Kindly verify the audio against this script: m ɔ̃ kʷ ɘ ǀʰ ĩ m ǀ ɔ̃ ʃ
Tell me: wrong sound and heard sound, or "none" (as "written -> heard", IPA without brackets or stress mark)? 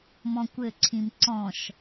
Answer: none